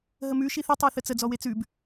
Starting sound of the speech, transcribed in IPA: ɦ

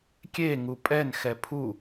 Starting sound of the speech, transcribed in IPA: kʲ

